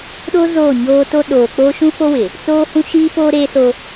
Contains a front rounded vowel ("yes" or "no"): no